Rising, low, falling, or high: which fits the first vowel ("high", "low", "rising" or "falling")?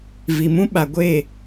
low